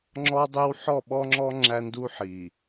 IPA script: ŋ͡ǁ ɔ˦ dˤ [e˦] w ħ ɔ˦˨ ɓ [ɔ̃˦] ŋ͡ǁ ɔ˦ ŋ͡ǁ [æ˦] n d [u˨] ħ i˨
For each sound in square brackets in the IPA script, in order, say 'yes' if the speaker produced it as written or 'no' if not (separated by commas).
yes, no, yes, no